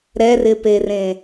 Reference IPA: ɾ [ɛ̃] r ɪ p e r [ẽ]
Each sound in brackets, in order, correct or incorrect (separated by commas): incorrect, correct